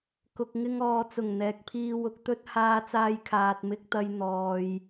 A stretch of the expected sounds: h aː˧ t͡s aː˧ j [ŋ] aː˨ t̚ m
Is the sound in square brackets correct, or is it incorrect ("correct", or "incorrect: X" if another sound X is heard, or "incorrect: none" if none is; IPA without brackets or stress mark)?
incorrect: kʰ